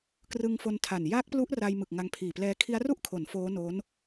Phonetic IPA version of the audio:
k r ɯ˧ ŋ f o˧ n tʰ a˨˩ n j a˦˥ k̚ p l u˦˥ ʔ r a˧ j m ɯ˨˩ k̚ ŋ a˧ ŋ pʰ iː˨˩ p l ɛː˦˥ kʰ i˦˥ a̯ r u˥˩ ʔ kʰ o˩˦ n f oː˦˥ n o˦˥ n

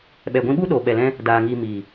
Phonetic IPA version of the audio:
ɓ ɛ˨ ɡʷ ĩ˧ ɓ u˦ ɗ oː˨ ɓ ɛ˨ l ɛ̃˧ | d aː˨ ŋ iː˨ m iː˨

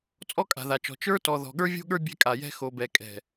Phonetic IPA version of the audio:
t͡sʼ ɔ˦ kʼ a̤˨ ð a˨ t͡ʃ ɔ̤˨ t͡ʃ ə˞˦ t ɔ˨ ð ɔ̤˨ ɠ ə˞˦ vʲ o̤˦ ɠ ə˞˦ bʲ ɛ̤˦ kʼ a˨ j ɛ̤˦ x o˨ b ɛ˨ kʼ ɛ̤˨

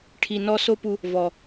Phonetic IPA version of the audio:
ʈʰ i˧ n ɔ˦ s o˦ p u˧ | v ɔ˨

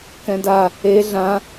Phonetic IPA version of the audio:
k ɛ̃ d a | e ɮ ã

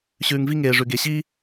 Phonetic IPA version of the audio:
ɕ ʉː˧ ŋ v i˥ ŋ eː˧ ʐ ʉ˧ ɡ e˧ ɕ i˥

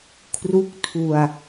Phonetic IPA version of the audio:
kʰ r u˦˥ k̚ tʰ u˧ a̯

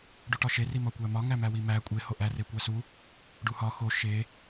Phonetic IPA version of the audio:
ɖ u ʈ ɒ ʃ e r i m ɒ kʷ æ m ɒ ŋ æ m æ w i m æ kʷʼ e h o ʔ æ r e kʷ æ s u | ɖ u h ɒ x o ʃ e

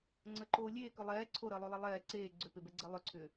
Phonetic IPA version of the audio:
ŋ͡ǀ ə ǃ oː lʲ eː k ʏ lˠ ɛː ǀʰ o ɾ əː lˠ o lˠ e lˠ ɛː ǀ eː ɡ͡ǀ ʏ p e b ɛ ɡ͡ǀ ɛ lˠ ʏ ǀʰ ʏː

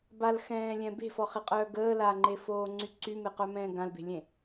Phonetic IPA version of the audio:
b a l x ɛ̃ː lʲ ɛ̃ b e̤ f ɔ χ e qʼ œː ɡ əː l a ŋ͡ǃ e f oː ŋ͡ǀ y ǀ y m e q œ m ɛ̃ː ɡ ã l b e̤ lʲ ẽ

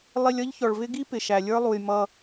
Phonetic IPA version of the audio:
lˠ i˧ lʲ ʌ˦ ʎ ç ɔ˨ ɭ v ɪ˦ ɡ i˦ p ɪ˨ ʃ æ˨ lʲ ə˞˦ lˠ u˨ j m ʌ˧

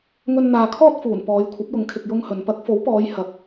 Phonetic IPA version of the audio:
ŋ ɵ˧ n n̪ aː˨ kʰ ɔː˥ t̚ f uː˨˩ n p ɔː˨˧ j kʷʰ ɐ˨˥ p̚ j ʊ˨˥ ŋ kʰ ɪ˨ k̚ j ʊ˥ ŋ h ɵ˨˧ n p ɐ˨˥ k̚ f o˨˥ w p ɔː˨˧ j h ɐ˨˥ p̚

